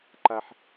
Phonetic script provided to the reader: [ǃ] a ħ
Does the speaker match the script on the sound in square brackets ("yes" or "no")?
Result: yes